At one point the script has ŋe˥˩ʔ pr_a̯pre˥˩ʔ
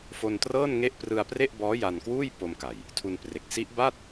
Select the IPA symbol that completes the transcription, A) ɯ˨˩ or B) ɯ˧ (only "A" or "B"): B